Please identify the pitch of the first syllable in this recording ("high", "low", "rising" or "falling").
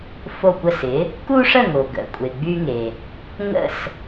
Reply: falling